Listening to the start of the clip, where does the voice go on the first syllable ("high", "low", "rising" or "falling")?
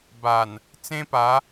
low